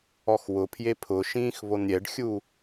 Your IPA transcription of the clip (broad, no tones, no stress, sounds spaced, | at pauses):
ɔ x w ʊ pʰ j e pʰ ʊ ʃ ĩː x β o n ɾʲ ɛ ɖ xʲ u